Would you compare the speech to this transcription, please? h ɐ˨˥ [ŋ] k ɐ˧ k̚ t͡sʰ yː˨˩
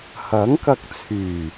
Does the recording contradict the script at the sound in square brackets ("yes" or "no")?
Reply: no